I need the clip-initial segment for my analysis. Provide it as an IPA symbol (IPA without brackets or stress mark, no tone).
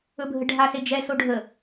ɵ